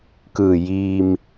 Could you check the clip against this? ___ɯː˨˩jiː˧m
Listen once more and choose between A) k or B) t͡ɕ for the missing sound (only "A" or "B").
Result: A